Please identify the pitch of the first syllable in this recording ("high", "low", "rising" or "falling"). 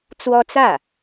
high